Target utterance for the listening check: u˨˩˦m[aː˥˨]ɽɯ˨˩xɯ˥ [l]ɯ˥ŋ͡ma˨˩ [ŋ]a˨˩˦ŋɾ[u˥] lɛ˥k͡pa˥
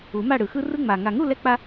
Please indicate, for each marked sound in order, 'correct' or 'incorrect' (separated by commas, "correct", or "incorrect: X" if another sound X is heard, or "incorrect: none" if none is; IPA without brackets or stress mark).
incorrect: a˥˨, incorrect: r, correct, incorrect: u˥˨